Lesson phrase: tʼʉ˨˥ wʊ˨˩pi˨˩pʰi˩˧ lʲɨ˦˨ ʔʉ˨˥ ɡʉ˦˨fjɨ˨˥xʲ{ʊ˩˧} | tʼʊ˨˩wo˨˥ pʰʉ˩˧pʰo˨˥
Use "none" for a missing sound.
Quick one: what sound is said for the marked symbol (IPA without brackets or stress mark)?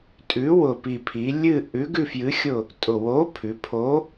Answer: ʊ˦˨